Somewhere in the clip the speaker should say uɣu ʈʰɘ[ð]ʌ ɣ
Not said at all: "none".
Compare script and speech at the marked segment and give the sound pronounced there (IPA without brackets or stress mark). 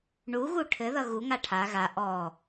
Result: ð